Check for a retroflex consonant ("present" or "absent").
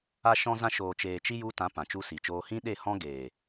absent